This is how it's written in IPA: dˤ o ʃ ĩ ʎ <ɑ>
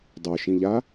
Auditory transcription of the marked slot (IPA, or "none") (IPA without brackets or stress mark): a